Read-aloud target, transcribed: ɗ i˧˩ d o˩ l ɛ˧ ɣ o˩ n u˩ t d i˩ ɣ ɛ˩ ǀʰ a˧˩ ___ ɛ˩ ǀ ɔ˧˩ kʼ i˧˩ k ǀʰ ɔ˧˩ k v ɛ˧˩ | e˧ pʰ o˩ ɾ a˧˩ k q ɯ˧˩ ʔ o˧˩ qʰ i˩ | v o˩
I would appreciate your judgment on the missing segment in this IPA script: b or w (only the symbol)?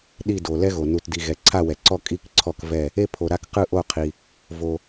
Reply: w